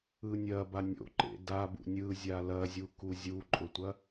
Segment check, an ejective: present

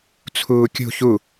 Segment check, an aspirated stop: present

